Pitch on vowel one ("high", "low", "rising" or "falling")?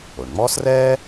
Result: low